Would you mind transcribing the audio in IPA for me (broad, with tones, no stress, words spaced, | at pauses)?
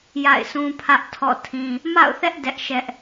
ja̰˦˨ɪ̯sʰũ˦pʰä˦ʔ tʰɔ̰˦˨tʰĩ˦ | ma̰˦˨ʊ̯θɛ˦ʔ dɛ˦ʔʃɛ˦ʔ